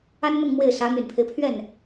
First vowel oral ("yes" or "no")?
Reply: yes